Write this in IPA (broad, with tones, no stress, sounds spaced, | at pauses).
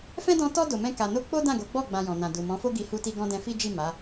f ɛ̃˦ d ɔ̃˦ t ɔ˦ d o˧ m ɛ̃˦ k a˧ n o˦ k͡p o˦ d ã˦˨ ɡ o˨˦ ɡ͡b ɔ˦˨ ɡ͡b ã˧ j ɔ̃˨ n ã˨ d u˨ m ɔ̃˨˦ f o˦ ɡ i˧ h u˧ t i˧ ɡ ɔ̃˧ d ɛ̃˧ f i˦ d͡ʒ i˦˨ m a˨˦